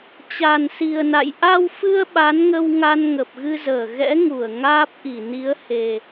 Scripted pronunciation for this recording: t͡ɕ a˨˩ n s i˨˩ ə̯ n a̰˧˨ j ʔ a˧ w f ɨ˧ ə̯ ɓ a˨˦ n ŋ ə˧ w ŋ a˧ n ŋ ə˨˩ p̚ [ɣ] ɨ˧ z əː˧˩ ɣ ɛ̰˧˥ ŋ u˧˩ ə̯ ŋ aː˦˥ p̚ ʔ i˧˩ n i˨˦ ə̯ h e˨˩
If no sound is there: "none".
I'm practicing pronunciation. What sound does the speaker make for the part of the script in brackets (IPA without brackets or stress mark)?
ɣ